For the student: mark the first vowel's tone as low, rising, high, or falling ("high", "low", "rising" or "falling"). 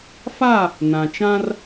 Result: falling